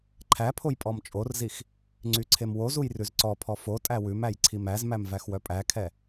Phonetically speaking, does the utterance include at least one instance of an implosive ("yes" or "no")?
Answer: no